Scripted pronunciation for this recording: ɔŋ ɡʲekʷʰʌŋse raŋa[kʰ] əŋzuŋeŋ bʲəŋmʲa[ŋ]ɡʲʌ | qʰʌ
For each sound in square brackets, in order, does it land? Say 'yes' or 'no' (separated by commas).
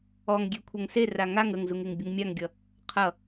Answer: no, yes